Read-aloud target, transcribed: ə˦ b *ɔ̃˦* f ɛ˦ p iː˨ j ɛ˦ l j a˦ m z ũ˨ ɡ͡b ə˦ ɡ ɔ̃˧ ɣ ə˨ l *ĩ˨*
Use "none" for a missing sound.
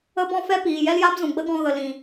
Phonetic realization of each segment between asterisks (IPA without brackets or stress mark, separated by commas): ɔ̃˦, ĩ˨